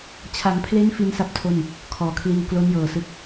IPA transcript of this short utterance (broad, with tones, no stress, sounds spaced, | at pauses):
t͡ɕʰ a˩˦ ŋ pʰ l e˦˥ n f i˦˥ n s a˥˩ p̚ tʰ o˥˩ n | kʰ ɔː˨˩ kʰ l iː˧ w k l o˦˥ n j ɤː˨˩ s ɯ˦˥ k̚